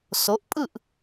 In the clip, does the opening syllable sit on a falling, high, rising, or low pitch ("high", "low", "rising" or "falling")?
rising